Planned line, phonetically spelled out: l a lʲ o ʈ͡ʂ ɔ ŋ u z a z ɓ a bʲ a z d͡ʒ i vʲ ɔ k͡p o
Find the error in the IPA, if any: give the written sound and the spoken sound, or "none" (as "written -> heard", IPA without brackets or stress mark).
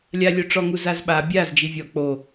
l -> lʲ